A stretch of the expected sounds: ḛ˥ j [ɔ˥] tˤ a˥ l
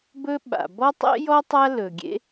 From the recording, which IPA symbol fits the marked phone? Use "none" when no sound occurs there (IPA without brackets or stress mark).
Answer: ɔ˥